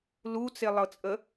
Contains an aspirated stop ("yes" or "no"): no